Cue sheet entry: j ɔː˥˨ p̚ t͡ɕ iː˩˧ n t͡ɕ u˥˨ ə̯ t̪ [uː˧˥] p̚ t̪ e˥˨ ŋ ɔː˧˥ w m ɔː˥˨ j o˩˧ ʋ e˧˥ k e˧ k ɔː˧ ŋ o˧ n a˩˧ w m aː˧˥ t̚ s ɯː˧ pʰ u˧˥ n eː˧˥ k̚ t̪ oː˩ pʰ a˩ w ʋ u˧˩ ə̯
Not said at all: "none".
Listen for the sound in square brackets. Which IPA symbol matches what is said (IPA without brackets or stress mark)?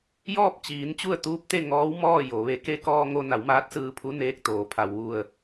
uː˧˥